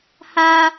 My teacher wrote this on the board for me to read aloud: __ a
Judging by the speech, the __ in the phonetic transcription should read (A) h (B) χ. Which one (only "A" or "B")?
A